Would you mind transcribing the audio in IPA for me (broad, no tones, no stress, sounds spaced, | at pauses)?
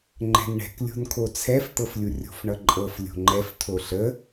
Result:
ŋ͡ǃ ɛ̤ n ɳ ɛ̤ k lʲ o̤ n kʰ o t͡sʰ ɛ f t̪ ɤ f lʲ u rʲ o̤ f ɳ ʌ ǃʼ ɤ f lʲ o̤ ŋ͡ǃ ɛ f tʰ o ɬ ə